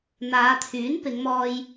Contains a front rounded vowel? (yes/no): yes